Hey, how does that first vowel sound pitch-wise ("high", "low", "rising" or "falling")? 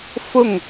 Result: falling